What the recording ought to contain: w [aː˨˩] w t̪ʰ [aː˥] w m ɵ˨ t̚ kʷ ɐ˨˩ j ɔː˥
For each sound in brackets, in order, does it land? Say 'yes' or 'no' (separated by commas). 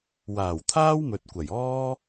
yes, yes